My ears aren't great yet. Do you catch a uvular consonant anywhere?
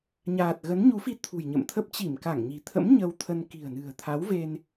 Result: no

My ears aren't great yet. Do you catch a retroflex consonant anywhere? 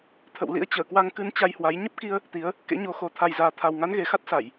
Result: no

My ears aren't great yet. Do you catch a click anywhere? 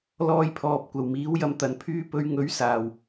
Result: no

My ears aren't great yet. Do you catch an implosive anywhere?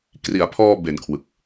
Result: no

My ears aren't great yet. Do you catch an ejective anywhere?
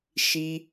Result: no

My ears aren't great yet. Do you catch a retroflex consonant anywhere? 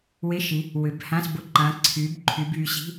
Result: no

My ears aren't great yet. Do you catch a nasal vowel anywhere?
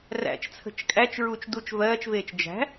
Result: no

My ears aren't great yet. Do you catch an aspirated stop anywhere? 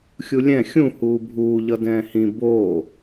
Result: no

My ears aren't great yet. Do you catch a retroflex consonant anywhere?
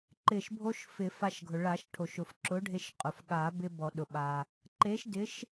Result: yes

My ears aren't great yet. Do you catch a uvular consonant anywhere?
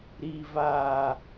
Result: no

